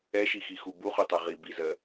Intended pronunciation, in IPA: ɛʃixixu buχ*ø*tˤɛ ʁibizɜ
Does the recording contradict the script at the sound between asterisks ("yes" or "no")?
yes